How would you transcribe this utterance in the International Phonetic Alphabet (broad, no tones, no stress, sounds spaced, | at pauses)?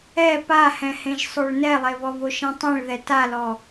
ɛ p a h ɛ̃ h ẽ ʒ sˤ o ɭ n ɛ lˠ e β ɔ β o ʃ ẽ tˤ ɛ̃ ɭ ð ɛ t a l ɔ